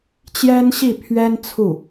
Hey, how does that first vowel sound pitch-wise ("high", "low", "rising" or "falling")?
high